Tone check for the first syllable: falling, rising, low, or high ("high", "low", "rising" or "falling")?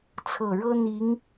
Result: low